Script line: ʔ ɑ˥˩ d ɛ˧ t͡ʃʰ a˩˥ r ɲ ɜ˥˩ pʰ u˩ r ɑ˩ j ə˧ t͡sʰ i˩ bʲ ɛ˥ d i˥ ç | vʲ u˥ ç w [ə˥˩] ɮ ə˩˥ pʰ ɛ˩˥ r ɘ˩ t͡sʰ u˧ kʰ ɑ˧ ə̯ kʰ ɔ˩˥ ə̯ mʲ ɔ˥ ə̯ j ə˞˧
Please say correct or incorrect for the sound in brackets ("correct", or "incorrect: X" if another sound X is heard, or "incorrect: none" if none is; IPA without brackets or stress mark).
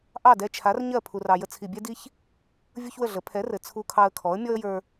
correct